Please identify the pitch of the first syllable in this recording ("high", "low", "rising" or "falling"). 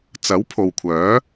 rising